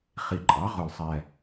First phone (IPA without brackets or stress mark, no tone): χ